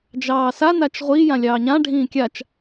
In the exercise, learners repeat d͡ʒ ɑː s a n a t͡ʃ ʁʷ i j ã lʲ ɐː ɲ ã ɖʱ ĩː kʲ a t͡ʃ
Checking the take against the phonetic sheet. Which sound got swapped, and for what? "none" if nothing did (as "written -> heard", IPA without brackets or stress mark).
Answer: ɐː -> ɑː